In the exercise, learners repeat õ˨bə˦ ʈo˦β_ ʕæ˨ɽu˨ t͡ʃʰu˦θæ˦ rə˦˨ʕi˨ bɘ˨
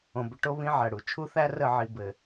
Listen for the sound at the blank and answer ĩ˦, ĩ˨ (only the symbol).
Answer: ĩ˦